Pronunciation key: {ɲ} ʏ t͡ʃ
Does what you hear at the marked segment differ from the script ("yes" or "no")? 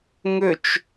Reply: yes